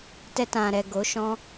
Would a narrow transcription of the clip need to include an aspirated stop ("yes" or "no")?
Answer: no